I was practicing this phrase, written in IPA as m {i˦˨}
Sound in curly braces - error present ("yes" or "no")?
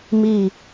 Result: no